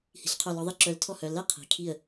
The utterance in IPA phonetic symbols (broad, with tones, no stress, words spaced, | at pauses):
hi̤˨˩˦ɬqʰœ˧˩lɔ˨˦ðˤi˥˩ ǁœ˨˦l tʰɔ˥˩hœ˩˧˩ lɛ˥˩ qʰi̤˩˧˩kʰi˥˩ə̯